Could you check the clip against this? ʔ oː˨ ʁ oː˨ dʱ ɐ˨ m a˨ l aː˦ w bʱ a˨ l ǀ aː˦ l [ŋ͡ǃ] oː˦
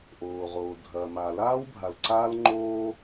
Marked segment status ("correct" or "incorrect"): correct